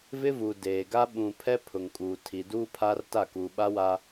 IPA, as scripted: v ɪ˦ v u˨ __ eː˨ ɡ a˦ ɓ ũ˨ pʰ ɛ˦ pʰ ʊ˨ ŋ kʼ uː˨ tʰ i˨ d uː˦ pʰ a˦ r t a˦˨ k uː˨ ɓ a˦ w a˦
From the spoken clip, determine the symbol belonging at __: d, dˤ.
d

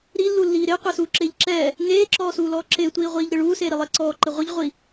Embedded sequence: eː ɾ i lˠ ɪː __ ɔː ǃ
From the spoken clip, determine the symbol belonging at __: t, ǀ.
ǀ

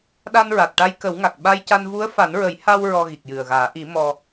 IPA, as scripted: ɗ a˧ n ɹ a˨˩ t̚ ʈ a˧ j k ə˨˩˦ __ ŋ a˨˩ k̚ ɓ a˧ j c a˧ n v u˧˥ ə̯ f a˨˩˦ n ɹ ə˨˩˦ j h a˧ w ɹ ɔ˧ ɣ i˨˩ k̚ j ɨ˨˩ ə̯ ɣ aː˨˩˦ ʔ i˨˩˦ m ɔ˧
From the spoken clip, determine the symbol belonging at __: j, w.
w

